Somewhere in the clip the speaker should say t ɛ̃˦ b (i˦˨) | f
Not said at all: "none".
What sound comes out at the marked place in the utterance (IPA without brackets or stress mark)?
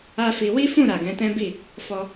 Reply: i˦˨